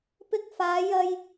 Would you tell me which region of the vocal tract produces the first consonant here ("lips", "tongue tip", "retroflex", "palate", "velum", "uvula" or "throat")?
lips